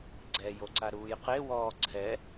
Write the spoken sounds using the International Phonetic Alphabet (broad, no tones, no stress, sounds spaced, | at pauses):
ɡ͡ǀ ɛ j o ǀ a ɾ uː j q e w ɔː ǀʰ ɛ